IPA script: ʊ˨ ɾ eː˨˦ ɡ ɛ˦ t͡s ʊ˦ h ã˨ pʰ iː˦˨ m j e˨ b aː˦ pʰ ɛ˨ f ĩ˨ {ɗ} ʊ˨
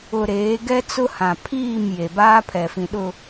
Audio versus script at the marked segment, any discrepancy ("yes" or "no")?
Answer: no